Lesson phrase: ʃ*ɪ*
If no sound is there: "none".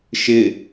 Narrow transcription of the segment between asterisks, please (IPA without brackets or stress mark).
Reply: ɪ